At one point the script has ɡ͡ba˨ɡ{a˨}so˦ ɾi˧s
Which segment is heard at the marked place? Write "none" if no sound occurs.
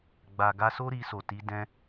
a˧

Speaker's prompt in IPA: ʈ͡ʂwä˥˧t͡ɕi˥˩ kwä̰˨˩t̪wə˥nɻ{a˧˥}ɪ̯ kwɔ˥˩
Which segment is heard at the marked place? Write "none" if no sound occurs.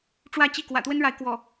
a˧˥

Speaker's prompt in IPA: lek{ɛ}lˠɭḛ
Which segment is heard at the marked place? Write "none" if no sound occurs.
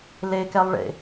ɛ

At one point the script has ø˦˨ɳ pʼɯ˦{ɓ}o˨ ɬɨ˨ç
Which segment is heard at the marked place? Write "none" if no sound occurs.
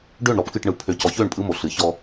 m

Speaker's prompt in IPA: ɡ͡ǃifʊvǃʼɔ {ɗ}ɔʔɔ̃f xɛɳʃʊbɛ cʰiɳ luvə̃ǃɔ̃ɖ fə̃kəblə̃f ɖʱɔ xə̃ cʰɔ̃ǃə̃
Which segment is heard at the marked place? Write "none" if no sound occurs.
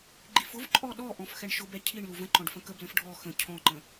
ɗ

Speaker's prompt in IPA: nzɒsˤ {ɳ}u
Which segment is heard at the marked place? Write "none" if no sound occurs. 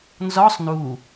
n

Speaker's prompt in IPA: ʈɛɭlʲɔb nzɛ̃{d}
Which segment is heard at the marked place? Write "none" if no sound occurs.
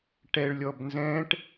ʈ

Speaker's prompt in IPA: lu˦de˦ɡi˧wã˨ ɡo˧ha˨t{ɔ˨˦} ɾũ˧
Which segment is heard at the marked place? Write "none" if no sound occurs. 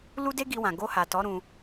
ɔ˨˦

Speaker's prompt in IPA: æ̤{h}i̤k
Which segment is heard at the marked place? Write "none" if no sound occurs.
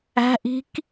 ʔ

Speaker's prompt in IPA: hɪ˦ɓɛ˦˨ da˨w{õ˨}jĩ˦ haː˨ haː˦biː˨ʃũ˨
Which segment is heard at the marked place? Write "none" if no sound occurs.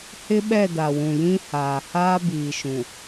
ũ˨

